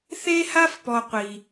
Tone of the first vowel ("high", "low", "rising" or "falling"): high